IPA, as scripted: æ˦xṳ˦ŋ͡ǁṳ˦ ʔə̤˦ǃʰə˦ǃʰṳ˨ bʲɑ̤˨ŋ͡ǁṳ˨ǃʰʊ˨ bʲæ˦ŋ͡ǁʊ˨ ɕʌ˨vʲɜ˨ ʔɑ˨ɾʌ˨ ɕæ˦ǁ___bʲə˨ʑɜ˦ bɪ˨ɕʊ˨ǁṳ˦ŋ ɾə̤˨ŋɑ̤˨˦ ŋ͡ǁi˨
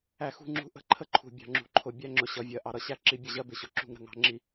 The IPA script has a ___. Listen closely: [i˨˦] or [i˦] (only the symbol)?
i˨˦